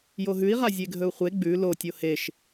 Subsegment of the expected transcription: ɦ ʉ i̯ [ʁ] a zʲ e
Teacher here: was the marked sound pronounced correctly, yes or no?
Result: yes